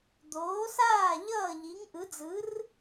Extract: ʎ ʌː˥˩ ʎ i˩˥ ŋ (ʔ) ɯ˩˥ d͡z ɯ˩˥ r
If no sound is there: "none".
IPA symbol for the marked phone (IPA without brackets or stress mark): ʔ